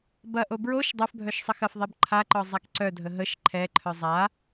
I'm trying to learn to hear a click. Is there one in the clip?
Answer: yes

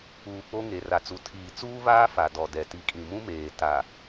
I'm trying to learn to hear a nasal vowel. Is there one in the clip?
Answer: yes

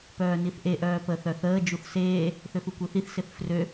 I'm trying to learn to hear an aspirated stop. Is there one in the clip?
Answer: no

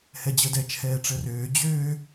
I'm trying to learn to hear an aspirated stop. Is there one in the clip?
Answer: yes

